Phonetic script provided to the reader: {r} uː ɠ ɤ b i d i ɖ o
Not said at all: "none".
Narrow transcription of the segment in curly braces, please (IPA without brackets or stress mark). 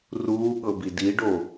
r